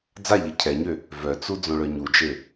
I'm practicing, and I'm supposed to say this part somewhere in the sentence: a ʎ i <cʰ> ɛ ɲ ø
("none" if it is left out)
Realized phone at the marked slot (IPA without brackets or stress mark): cʰ